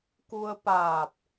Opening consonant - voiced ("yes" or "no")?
no